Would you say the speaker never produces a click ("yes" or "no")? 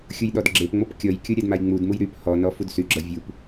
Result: no